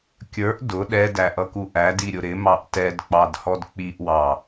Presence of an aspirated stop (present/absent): absent